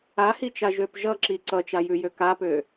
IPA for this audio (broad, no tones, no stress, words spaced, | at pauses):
ahit͡ʃa ʒøpʒʌǁi ǀʌt͡ʃajʉjø kapø